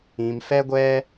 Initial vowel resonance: nasal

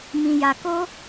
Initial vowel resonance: nasal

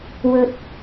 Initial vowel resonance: oral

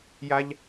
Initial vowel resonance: oral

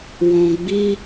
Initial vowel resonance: nasal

